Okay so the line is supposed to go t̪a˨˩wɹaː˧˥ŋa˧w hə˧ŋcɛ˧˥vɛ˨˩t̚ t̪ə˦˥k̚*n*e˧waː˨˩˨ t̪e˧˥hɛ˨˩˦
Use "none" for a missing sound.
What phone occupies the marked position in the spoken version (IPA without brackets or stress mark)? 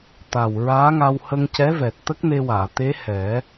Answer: n